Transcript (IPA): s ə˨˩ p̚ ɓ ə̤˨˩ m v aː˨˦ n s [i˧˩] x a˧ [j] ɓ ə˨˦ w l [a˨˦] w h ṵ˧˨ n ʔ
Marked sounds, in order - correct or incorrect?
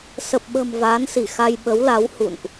correct, correct, correct

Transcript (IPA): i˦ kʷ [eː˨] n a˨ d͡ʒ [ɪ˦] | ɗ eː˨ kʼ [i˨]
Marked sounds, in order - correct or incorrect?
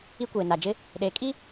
correct, correct, incorrect: i˦

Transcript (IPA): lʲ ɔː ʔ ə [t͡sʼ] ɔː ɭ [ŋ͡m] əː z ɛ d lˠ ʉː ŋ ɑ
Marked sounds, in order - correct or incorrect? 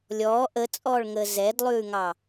correct, incorrect: ŋ

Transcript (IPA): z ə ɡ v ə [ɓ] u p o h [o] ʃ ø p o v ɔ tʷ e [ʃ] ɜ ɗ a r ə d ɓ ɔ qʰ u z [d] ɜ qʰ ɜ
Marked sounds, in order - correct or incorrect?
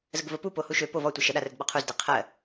incorrect: p, incorrect: u, correct, correct

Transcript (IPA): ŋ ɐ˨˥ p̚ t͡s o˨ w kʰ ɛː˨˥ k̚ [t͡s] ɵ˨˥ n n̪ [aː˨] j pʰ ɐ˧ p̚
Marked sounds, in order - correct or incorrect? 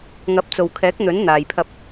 incorrect: n̪, correct

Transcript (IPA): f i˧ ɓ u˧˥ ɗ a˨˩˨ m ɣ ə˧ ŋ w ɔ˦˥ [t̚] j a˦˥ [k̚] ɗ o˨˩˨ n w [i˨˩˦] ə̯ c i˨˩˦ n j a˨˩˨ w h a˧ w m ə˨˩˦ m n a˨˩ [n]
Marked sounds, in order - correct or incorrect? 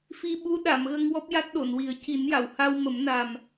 incorrect: p̚, incorrect: t̚, correct, incorrect: m

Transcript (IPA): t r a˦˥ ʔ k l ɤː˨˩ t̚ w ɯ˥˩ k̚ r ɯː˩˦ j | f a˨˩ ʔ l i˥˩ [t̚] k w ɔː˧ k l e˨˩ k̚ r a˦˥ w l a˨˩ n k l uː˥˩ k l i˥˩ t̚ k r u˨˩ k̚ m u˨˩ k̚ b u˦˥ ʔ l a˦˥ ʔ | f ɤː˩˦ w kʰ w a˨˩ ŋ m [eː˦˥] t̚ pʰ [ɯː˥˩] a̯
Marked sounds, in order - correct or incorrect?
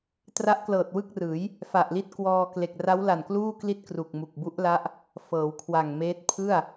correct, correct, incorrect: ɯ˥˩

